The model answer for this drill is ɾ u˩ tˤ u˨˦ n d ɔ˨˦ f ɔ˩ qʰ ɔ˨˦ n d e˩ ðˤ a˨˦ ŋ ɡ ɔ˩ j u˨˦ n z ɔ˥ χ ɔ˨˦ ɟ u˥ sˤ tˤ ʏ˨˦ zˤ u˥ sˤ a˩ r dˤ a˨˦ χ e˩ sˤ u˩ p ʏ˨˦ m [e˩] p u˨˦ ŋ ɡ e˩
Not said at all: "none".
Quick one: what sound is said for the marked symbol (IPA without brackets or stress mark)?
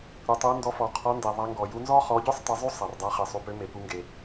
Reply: e˩